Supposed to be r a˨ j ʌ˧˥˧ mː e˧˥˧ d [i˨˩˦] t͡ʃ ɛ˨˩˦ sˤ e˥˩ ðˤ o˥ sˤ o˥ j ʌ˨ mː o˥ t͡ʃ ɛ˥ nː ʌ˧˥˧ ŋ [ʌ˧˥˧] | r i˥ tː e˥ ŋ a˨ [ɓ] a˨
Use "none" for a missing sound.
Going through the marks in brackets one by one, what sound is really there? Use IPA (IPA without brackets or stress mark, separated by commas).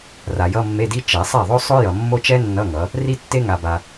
i˥, ʌ˨˦, b